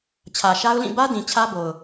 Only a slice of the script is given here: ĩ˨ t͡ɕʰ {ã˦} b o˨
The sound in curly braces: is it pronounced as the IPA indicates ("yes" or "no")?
no